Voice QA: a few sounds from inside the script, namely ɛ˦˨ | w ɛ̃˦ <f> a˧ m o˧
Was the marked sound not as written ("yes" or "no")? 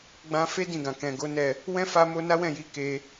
no